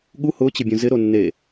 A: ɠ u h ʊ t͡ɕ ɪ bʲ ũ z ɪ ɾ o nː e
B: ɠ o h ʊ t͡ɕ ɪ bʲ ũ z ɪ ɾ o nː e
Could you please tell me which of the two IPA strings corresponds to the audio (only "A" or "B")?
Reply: A